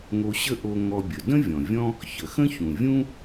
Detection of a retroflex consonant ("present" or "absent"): absent